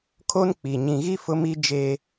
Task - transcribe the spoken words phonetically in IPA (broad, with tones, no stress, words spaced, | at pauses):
kʰo˦nk͡pi˨ ɲĩ˨ɣi˦ fʊ˦mi˦ d͡ʒe˦